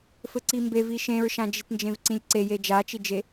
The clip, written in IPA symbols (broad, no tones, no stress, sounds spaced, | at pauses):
f ɘ ǀ i m b e v i ʃ ẽ ɹ ʃ ã d͡ʒ i t n d͡ʒ ẽ v ǀ ĩ lʲ ǀ e j e d͡ʒ a t͡ʃ i d͡ʒ e